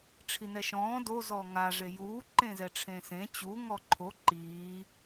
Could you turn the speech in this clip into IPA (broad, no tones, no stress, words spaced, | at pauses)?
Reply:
ʈ͡ʂʰinɛʃɔ̃ː do zɔŋa ʐejuː ǃẽzɛʈ͡ʂʰẽːsẽ t͡ɕu ŋɔǃʰo ǃiː